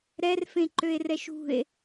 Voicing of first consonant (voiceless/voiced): voiced